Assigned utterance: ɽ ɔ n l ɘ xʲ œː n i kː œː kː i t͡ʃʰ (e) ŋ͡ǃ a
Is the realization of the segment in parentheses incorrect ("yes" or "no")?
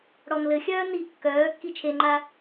no